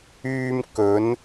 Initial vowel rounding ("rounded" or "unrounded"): rounded